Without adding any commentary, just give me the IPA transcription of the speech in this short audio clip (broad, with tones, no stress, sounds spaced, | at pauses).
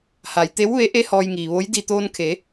h a˩ j t̪ e˧˥ w ʋ e˧˥ ʔ e˧˥ h ɔː˧ j ŋ iː˩ ʋ o˧˥ j d i˧˩ t̪ oː˧ n kʰ e˩˧